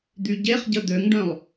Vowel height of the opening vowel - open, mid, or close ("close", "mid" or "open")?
close